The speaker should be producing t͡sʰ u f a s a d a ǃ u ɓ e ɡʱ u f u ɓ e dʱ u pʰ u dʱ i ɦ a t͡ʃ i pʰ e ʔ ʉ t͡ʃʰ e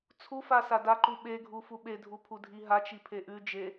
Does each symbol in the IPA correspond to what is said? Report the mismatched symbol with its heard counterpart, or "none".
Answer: t͡ʃʰ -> d͡ʒ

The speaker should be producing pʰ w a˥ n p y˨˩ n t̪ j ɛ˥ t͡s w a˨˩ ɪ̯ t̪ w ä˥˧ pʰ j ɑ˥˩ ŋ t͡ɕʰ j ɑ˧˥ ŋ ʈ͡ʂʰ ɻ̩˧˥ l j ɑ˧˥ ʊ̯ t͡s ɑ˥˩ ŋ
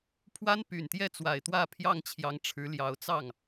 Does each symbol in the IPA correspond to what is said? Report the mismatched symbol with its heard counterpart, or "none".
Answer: none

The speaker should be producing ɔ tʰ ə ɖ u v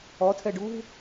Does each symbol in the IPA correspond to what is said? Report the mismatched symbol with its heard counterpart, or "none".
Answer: ə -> ɛ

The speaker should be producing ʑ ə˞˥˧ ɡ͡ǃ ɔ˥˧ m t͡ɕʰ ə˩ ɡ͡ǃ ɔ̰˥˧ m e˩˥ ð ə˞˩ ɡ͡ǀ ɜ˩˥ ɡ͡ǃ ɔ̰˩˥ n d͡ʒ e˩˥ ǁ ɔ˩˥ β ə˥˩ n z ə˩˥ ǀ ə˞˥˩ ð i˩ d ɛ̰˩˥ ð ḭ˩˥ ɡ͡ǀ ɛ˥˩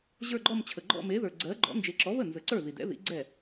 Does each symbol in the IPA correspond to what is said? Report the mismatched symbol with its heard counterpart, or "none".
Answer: none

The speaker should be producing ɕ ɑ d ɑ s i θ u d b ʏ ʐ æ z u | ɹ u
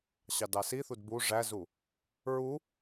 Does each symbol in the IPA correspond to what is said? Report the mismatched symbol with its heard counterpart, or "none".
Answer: ʏ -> u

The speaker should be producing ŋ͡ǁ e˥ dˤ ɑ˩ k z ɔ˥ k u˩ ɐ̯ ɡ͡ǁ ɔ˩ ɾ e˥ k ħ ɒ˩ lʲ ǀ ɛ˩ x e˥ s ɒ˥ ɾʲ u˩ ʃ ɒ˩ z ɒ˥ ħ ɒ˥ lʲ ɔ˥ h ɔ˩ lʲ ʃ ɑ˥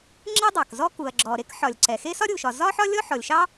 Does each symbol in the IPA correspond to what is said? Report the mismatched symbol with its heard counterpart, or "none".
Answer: h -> ħ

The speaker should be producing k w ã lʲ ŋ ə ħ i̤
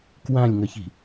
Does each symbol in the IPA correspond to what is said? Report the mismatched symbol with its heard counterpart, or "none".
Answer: ħ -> ç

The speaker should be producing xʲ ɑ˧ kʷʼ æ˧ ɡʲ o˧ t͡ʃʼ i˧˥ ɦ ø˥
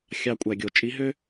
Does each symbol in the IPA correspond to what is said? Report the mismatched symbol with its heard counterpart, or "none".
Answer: none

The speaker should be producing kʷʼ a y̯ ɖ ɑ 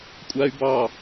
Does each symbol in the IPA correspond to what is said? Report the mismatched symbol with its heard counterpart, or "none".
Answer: ɖ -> b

